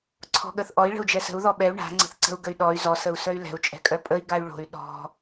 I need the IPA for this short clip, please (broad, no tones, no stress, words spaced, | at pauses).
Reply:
ǀʰɔ̤ɠəθʔɔi̯ ɭə̤u̯d͡ʒɛsə̤u̯ ðɔɓɛu̯ ɳa̤ ŋ͡ǀə̤θǀə̤u̯ ɡəy̯ɗɔy̯ zɔ səu̯sœy̯lɛ̤u̯ t͡ʃʼɛ̤kʼœpʼəi̯ ɡay̯ɭo̤y̯ ɗɔ̤